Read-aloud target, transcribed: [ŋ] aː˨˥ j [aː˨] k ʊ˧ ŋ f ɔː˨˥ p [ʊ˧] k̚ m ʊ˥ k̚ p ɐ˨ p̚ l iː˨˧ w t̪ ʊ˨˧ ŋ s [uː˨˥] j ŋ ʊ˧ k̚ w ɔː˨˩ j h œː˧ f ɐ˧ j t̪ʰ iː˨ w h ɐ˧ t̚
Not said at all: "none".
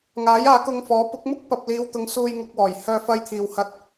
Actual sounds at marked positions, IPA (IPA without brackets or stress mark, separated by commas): ŋ, aː˨˧, ʊ˨˥, uː˧